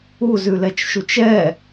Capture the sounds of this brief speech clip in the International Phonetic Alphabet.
u z ʉ l ɛ t͡ʃ ʃ u t͡ʃ ɛ

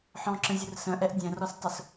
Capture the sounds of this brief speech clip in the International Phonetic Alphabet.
ħ ɔ̃ ǁ ə̃ zʲ ʊ r s ə̃ ʔ ɛ ʔ dʲ ɛ̃ r ɔ s tˤ ʊ s

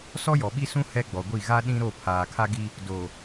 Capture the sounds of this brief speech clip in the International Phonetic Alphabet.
s ɔ˦ j ɔ˨ ɓ i˦ s ũ˦ h ɛ˦ ɡ͡b ɔ˨ ɡʷ i˦˨ ɣ a˦ ɗ ĩ˦ ɾ o˦˨ pʰ aː˨ kʰ a˦ ɡ i˦ | d o˨

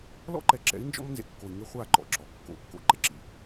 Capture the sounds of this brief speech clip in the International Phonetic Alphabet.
l ɔ̰˦ ǃ ɛ˨ ǁ ɛ̰˨˦ i̯ n d͡ʒ ɔ̰˦ m n z ḛ˨ kː o˨ i̯ ŋ e˦ χʷ a˦˨ ǃ ɔ̰˨ ǁ ɔ˨ kː o̰˨˦ kː o̰˨ ǃ e˦ ǁ ḭ˨

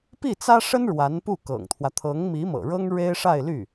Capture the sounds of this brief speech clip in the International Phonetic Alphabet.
p i˥˩ t͡s ä˥ ʂ ə˥ n ɻ w a˧˥ n p u˥˩ k ɤ̰˨˩ ŋ t̪ʰ w ä˦ t̪ʰ ɤ˧˥ ŋ m i˧˥ m ɤ̰˨˩ ɻ ɤ˥ ŋ ɻ e˥ ɪ̯ ʂ a˥˧ ɪ̯ l y˥˩

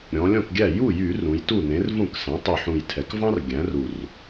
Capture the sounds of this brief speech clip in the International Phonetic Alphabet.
ɾʲ ɔ̃˩˧ lʲ ɔ̃˥˩ k ɡʲ æ˥˩ j u˥˩ j y˧˩˧ r ũ˩˧ j t u˥˩ n ẽ˩˥ r v ũ˥˩ k s ɛ̃˩˥ tˤ y˨˩ ħ ũ˨˩ j tʰ ɛ˩˧ k v ɑ̃˦ r ɡʲ æ̃˩˥ r u˨˩ r

